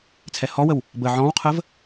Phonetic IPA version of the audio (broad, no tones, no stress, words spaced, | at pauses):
t͡sʰɛhɔwəw | bə ʕɔ̃wqʰəv